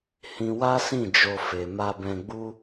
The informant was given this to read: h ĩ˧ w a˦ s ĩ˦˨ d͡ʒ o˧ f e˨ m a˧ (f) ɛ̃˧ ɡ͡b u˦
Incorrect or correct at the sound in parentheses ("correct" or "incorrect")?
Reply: incorrect